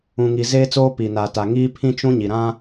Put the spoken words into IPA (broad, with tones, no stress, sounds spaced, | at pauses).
ũ˨ ŋ i˨ z eː˦ t͡s oː˦ p i˨ n a˨ t a˨ ŋ iː˦ pʰ ĩ˦ t͡ʃ ũ˦ ɲ i˨ ɾ ã˦